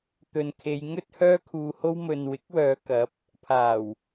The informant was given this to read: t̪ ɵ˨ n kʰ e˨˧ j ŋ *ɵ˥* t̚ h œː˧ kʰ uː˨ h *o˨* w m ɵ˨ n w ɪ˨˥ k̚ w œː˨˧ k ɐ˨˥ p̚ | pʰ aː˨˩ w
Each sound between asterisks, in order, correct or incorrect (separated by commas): correct, incorrect